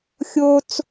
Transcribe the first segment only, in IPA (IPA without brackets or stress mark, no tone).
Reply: xʲ